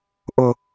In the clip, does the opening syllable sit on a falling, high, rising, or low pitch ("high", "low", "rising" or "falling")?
low